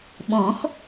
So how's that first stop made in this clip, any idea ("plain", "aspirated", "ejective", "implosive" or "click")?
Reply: implosive